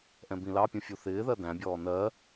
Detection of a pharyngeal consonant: absent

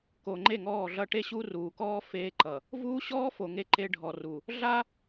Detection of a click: present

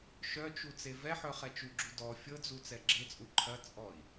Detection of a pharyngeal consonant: present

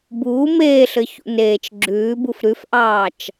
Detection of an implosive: absent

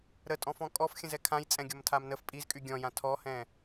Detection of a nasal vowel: present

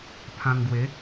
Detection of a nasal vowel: present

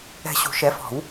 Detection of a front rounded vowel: absent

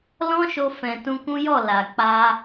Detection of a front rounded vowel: absent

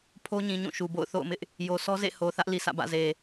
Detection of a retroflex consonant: absent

